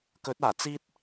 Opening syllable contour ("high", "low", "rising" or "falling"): rising